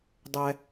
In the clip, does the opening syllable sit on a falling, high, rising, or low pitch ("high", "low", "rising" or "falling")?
low